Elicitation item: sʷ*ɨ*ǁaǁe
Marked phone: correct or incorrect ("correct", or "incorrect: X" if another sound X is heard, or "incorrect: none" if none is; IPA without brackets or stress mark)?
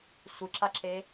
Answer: correct